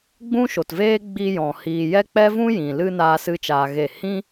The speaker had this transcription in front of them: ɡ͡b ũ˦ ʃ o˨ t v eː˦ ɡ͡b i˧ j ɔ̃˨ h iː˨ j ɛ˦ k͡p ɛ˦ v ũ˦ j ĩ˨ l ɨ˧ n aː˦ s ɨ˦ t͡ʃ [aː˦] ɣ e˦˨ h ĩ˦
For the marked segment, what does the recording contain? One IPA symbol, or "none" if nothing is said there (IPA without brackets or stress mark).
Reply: aː˧